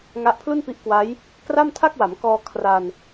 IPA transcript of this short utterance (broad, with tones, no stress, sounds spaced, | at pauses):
ŋ a˦˥ ʔ pʰ l u˥˩ n p i˦˥ ʔ k w a˦˥ j | k r a˥˩ m tʰ a˥˩ k̚ w a˩˦ m k ɔː˧ kʰ r a˧ n